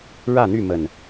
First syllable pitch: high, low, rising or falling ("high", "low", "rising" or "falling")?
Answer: falling